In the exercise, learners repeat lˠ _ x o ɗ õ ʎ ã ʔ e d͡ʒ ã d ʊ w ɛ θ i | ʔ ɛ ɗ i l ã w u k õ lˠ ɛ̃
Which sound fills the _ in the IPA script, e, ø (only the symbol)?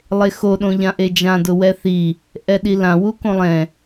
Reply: e